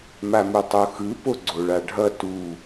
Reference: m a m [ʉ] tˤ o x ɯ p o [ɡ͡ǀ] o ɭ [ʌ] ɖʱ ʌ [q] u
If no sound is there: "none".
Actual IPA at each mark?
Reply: u, ɡ͡ǀ, a, t

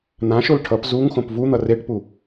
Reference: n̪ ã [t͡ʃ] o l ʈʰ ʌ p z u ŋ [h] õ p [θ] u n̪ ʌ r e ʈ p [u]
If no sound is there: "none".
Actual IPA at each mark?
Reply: ʃ, x, v, u

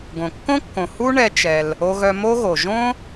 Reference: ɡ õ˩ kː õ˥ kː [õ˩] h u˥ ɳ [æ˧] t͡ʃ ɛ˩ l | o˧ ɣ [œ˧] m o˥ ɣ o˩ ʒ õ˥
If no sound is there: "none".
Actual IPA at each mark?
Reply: õ˩, ɛ˧, œ˧

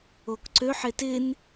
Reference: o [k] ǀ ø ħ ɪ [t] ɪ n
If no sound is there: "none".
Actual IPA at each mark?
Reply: k, t

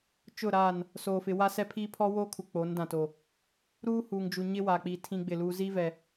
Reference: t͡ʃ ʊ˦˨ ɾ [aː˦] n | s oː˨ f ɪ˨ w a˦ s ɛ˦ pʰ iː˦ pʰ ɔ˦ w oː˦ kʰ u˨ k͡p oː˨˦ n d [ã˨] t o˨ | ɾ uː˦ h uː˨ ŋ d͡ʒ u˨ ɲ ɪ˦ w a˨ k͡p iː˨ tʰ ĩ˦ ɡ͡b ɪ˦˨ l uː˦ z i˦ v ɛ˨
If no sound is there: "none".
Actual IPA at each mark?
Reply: aː˦˨, ã˨

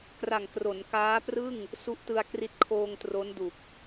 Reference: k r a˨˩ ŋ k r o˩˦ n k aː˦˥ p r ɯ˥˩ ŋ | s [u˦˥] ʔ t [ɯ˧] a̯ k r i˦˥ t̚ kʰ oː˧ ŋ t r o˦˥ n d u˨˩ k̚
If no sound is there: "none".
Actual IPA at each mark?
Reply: u˦˥, ɯ˧

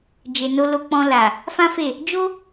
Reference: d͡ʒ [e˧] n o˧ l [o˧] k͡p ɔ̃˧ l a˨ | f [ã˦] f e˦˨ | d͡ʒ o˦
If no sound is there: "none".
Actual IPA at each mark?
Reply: e˨, o˧, ã˦

